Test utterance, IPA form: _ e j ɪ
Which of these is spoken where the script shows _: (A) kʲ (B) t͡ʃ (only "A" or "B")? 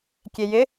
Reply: A